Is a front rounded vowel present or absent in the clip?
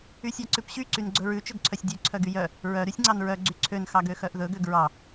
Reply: present